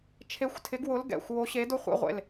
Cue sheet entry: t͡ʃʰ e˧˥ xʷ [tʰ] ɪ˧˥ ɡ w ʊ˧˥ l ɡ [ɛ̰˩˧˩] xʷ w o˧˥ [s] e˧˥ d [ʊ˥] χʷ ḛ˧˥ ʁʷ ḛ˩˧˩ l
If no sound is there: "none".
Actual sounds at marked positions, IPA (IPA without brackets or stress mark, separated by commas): tʰ, ɛ̰˩˧˩, ɕ, ʊ˥